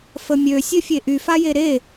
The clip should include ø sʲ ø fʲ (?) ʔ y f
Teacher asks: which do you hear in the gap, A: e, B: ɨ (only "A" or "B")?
A